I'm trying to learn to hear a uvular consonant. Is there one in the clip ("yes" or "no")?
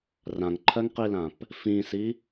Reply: yes